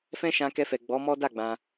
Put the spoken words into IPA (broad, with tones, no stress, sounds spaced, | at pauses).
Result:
f ɛ̃˦ ʃ ã˧ k ɛ˧ f ɛ˨ ɡ͡b ɔ˨˦ m ɔ˦ d a˦˨ ɡ͡b ã˧